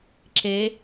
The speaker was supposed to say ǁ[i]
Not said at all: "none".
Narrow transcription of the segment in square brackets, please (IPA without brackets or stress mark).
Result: e